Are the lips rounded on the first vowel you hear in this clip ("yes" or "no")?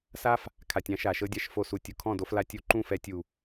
no